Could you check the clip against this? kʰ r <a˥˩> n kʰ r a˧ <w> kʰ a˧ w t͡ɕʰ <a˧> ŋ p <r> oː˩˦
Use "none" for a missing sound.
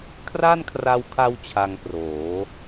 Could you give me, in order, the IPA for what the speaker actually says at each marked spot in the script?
a˥˩, w, a˧, r

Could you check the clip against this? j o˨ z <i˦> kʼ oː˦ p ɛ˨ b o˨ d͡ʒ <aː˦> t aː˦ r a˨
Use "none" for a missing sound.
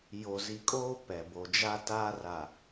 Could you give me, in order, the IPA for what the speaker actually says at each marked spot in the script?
i˨, a˦

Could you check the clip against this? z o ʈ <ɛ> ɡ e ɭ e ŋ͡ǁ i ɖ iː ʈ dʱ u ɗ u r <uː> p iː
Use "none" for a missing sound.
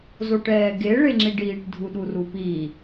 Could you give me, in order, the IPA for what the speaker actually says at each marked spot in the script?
ɛː, u

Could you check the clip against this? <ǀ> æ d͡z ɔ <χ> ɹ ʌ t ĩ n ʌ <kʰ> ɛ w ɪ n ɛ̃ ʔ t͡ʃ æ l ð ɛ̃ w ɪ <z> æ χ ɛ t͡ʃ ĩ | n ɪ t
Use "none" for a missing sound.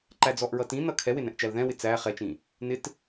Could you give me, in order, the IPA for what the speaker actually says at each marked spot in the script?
ǃ, ʔ, kʰ, t͡s

